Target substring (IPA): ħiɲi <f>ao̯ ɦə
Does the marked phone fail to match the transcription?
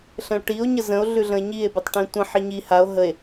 yes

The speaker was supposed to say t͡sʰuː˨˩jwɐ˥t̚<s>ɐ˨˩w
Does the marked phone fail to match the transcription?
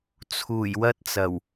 yes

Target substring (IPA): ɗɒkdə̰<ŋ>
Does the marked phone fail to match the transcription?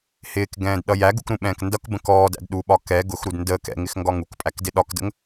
no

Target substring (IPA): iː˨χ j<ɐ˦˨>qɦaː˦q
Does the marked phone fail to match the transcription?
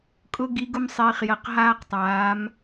yes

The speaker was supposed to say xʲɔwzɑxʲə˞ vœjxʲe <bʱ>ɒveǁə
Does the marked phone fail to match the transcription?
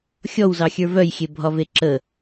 no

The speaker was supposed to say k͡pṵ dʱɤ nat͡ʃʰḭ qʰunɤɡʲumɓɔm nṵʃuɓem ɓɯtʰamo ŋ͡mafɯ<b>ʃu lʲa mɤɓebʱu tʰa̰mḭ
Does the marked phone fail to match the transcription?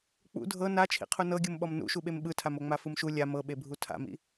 yes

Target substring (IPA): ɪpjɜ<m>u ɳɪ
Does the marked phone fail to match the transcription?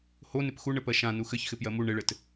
no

